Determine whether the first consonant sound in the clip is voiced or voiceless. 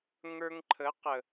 voiced